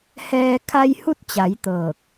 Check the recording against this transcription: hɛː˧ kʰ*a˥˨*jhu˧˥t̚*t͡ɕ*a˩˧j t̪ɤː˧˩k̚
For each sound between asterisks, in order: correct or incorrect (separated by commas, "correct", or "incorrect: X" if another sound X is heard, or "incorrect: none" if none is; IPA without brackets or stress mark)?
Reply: incorrect: a˧, correct